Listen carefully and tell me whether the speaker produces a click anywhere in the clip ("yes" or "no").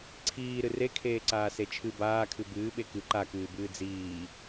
yes